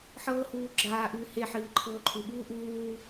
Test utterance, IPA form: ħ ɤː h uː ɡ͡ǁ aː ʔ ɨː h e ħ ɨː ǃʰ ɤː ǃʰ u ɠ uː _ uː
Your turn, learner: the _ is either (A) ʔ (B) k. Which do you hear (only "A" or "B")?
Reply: A